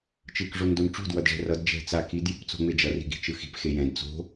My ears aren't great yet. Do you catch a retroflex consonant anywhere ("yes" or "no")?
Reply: yes